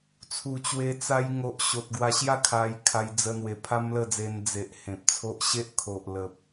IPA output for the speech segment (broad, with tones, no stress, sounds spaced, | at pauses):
t͡sʰ u˨˩ t͡ɕ w e˧ t͡s a˧ j ŋ o˨ ʔ ɕ o˨ t̚ ɡ w a˧ ɕ j a˥˧ kʰ a˧ j kʰ a˧ j d͡z ə˧ n̪ w e˨˩ pʰ a˦ m l ə˥˧ d͡z e˧ n d͡z e˨ ʔ h ẽ˨ p̚ t͡sʰ o˦ ʔ ɕ e˦ ʔ kʰ o˨ ʔ l ə˨ p̚